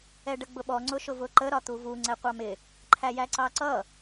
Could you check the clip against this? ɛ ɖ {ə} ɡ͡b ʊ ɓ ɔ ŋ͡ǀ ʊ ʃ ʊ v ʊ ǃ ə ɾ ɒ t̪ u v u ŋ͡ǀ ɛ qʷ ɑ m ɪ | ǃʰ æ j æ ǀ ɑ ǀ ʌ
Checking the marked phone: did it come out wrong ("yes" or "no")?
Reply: no